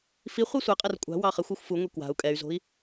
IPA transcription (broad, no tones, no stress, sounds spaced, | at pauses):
f i χʷ i sʷ ɛ qʼ ɛ r kʷʼ a̤ w ɑ χ ɘ xʷ u xʷ f u ŋʷ i k w a̤ u̯ kʼ ɛ y̯ z o̤ i̯